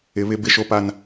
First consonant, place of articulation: labial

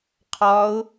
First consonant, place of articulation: uvular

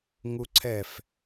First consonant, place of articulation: velar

